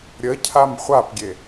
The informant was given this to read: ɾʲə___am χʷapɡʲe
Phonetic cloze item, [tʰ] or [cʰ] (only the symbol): cʰ